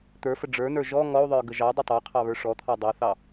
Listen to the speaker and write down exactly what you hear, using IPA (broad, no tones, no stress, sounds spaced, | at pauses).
t̪ ə˞ f ə ɖ͡ʐ ə˞ n ə˞ ʒ ɔ ŋ ɔ u̯ ðˤ ə˞ ɡ ə ʒ ɑ dˤ ə tˤ ɑ qʰ ɑ β ə˞ ʂ ɔ t̪ʰ ɑ dˤ ə˞ θ ɑ